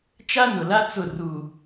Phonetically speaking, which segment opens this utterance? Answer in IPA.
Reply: t͡ʃ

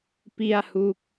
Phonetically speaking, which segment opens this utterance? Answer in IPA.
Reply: p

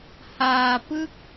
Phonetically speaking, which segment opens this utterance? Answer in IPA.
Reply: h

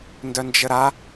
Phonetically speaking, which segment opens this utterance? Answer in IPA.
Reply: n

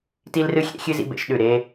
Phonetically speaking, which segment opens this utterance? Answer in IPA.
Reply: t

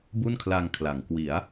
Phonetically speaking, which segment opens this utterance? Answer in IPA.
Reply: b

